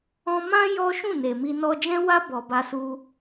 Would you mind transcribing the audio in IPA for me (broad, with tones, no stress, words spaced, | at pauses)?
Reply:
ɔ̃˧mã˦ jɔ˦ ʃũ˦˨ne˨mi˧ nɔ˧d͡ʒɛ̃˦wa˦ bɔ˧ba˦su˦